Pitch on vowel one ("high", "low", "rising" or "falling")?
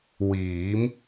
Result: rising